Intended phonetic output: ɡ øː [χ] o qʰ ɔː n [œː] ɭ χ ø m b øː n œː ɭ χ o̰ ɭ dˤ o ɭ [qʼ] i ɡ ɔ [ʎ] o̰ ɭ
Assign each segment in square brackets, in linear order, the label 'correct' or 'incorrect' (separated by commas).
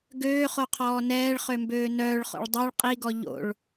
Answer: correct, incorrect, correct, correct